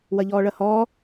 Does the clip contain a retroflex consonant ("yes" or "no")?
yes